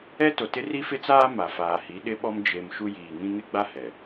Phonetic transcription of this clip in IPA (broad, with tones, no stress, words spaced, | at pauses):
ɛ˦to˨tɪ˦ ri˦fɪ˦t͡saː˦ ma˨faː˨hi˨˦ ɗɪ˦ɓɔ˦m d͡ʒe˨m ʃu˦ jiː˨ŋĩ˦ ŋɪ˦ɡ͡ba˦ hɛ˨